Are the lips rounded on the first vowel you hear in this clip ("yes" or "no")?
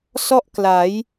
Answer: yes